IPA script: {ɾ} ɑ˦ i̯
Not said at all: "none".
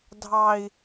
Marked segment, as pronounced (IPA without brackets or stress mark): dʱ